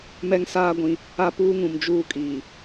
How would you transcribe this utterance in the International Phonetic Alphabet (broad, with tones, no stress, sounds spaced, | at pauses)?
m ɛ˦ ŋ s aː˦ ɡʷ ĩ˨˦ | a˦ p uː˦ ŋ ũ˨ m d͡ʒ uː˦ kʼ iː˨